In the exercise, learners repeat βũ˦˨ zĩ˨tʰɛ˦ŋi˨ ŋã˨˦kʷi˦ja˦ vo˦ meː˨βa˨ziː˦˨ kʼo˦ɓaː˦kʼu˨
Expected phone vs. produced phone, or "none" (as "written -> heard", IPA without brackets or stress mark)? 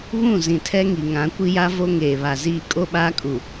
m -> ŋ